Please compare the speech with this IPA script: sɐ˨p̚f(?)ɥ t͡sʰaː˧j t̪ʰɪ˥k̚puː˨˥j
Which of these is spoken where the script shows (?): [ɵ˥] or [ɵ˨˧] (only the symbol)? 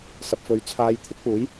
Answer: ɵ˨˧